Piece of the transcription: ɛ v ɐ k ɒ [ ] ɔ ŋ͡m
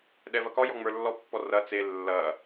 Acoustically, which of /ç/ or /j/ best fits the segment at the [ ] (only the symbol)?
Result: j